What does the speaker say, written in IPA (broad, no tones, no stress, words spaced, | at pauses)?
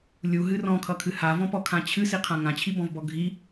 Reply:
lʲuɦɨ rɔ̃kʰʌkʰɨ havɔ̃pɔkʰã t͡ɕʰɨsiqʰã ŋãt͡ɕʰibɔ̃vbɔ ɡʱi